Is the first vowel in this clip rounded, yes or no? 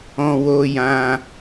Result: yes